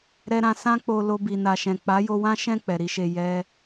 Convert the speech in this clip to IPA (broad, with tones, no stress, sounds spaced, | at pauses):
ɾ ɛ˨ ɾ ã˨ s ã˧ k͡p o˨ l o˧ b i˨ n a˨ ʃ ɛ̃˨ k͡p a˨˦ j o˧ w ã˦ ʃ ɛ̃˦˨ k͡p ɛ˨ ɾ i˨˦ ʃ e˧ j ɛ˧